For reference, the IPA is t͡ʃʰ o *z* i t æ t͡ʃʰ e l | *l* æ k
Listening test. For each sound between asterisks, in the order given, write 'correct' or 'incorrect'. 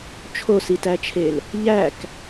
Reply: incorrect: s, incorrect: ʎ

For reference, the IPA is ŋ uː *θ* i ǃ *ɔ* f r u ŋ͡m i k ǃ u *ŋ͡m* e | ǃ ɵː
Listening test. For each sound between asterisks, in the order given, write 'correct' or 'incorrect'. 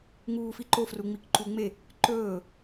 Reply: incorrect: f, incorrect: o, correct

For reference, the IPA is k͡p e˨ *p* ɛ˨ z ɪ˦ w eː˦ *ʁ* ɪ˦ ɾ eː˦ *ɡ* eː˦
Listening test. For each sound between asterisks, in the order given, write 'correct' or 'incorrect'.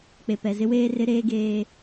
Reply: correct, incorrect: r, correct

